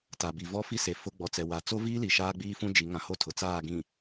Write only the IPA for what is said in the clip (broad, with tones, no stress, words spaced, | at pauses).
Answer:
ta˨bi˨ vɔ˦fi˦se˨ fʊ˦ ɡ͡bɔ˨t͡sɛ˨wa˨ t͡so˦viː˦li˨ ʃaː˦ɡ͡biː˦fũ˦ d͡ʒi˨˦ ŋã˨ho˦ tʰʊ˨ t͡saː˦˨ɡĩ˨